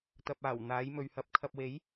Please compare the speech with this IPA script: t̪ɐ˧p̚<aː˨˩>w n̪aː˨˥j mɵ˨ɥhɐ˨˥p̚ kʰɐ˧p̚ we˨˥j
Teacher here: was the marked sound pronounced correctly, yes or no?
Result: yes